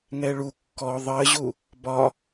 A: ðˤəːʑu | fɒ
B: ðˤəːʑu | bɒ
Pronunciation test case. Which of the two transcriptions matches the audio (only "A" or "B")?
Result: B